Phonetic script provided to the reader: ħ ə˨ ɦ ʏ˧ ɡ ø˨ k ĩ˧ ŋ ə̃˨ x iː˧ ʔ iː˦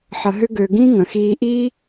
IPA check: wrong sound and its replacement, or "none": k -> ɡ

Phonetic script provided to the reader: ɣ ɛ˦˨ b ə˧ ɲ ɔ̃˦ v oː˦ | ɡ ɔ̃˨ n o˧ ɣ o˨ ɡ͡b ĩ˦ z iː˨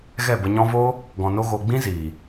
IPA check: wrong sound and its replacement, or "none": none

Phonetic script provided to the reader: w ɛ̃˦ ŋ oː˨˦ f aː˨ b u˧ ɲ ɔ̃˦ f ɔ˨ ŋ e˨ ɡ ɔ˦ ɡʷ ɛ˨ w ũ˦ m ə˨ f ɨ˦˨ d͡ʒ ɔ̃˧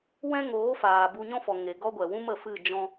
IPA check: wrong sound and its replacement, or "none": none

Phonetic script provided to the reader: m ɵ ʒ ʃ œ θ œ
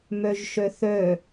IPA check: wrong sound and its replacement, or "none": ɵ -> œ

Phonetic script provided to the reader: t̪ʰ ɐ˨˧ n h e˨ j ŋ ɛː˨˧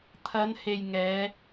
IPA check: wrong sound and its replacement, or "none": none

